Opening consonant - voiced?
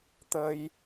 no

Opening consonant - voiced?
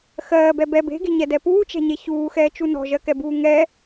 no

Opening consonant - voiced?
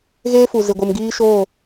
yes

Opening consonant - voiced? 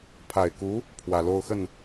no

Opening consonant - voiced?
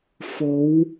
no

